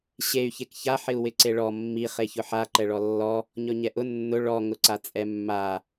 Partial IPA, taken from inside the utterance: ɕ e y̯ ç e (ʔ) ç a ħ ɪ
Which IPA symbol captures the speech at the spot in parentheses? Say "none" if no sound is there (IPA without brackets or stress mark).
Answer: k